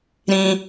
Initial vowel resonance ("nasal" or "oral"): nasal